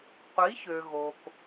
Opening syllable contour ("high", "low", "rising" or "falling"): rising